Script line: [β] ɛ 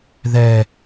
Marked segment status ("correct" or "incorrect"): incorrect